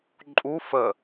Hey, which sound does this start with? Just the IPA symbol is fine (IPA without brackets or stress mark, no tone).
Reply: ǃʼ